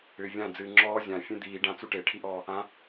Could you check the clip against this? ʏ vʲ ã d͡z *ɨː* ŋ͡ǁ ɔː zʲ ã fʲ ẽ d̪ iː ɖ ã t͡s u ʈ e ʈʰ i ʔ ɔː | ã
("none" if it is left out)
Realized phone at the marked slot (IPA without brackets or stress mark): ɨː